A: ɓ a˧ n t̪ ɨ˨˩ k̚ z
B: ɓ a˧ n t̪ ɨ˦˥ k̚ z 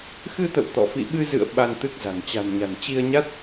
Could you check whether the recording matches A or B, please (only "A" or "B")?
B